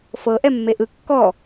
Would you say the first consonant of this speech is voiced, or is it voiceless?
voiceless